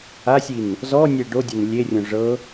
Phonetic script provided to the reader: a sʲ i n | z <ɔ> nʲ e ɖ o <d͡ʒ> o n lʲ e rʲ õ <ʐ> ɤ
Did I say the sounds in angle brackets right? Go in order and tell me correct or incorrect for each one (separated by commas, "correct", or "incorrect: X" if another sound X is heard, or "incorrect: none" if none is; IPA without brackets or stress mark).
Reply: correct, incorrect: dʲ, correct